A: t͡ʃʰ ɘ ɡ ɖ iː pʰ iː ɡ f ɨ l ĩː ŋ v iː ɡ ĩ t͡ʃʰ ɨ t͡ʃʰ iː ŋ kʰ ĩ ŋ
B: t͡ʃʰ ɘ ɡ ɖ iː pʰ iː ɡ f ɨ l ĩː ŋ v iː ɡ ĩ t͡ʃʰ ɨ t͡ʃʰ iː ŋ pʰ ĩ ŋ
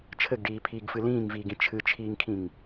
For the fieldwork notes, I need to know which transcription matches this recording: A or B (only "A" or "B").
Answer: A